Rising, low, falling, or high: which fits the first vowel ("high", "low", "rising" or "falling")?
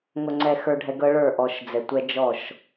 low